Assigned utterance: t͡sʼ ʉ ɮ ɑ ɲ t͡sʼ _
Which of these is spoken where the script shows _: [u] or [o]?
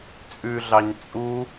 u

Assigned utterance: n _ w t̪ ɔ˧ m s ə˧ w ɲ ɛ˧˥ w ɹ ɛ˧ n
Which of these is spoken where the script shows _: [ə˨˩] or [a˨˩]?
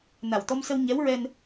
a˨˩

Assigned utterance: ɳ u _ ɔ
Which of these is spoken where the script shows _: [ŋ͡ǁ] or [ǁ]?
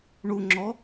ŋ͡ǁ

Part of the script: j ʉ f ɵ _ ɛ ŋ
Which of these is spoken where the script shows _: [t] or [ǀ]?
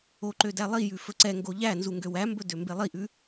ǀ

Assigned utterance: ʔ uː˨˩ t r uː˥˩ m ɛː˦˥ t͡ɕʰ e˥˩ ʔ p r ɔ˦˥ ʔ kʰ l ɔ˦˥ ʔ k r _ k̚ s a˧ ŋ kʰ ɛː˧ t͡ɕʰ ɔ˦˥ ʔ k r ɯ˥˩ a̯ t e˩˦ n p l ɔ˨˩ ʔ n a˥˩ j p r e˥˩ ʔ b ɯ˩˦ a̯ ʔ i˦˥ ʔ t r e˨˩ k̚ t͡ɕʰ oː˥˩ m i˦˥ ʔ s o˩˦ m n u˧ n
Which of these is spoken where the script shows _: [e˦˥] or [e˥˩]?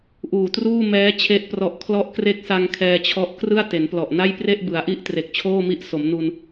e˦˥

